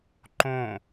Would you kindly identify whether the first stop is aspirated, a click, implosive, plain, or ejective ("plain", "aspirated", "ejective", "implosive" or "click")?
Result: click